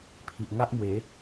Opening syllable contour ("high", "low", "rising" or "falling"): low